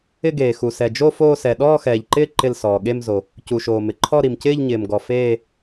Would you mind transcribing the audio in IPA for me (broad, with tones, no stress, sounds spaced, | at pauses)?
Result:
ɪ˥˧ ɡ eː˩ x u˩ s ɛ˩ d͡ʒ o˥˧ f oː˥˧ s ɛ˩ ɗ ɔː˥˧ x ɛː˩ ʎ ǃ ɪː˥˧ ǃ ɪ˥˧ l s ɔː˩ ɠ e˥˧ m z o˩ | c u˩ ʃ oː˩ m ɪ˩ ǃʰ ɔ˥˧ ɾ i˩ m c ɪː˥˧ ʎ ɲ ɪː˩ m ɡ ɔ˩ f eː˥˧